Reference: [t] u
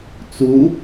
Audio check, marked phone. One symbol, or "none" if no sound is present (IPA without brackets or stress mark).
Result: t͡s